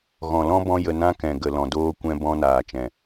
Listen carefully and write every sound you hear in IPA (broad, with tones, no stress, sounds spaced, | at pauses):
ɣ ɔ̃˨ l ɔ̃˦ b ɔ̃˦ j ə˧ n ã˦ k ɛ̃˨ ɡ ə˨ l ɔ̃˨ d oː˧ kʷ ɛ̃˧ b ɔ̃˧ n aː˨ t͡ʃ ɛ̃˨